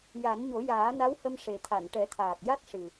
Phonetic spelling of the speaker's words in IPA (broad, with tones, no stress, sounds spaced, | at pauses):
j a˨˩˦ n ɲ o˨˩˦ j aː˨˩˦ n a˧˥ w h ə˧ m ʂ e˨˩ t̪ʰ a˨˩˨ n ʈ ɛ˨˩˦ t̪ʰ aː˨˩ k̚ j a˦˥ t̚ ʂ ɨ˨˩